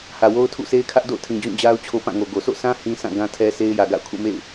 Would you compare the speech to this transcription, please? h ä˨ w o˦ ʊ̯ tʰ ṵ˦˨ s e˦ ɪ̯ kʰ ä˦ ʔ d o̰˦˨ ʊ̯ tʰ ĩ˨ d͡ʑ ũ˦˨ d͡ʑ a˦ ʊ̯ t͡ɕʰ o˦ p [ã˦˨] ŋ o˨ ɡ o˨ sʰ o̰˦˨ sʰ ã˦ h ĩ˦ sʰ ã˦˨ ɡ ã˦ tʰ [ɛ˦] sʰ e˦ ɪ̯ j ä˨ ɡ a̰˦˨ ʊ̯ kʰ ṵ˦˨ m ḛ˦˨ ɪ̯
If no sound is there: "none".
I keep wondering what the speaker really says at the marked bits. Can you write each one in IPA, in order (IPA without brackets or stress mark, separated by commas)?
ã˦˨, ɛ˦